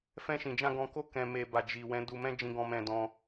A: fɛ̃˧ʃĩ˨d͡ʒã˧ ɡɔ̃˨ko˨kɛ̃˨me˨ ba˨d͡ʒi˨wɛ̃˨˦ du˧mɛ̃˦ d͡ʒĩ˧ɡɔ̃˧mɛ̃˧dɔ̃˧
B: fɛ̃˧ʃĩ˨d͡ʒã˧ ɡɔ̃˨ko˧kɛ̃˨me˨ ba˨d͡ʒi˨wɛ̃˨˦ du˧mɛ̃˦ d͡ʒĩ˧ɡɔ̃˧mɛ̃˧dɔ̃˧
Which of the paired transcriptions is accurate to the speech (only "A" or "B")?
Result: B